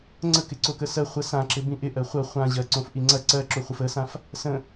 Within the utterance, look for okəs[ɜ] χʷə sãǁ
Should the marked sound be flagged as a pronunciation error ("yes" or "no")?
no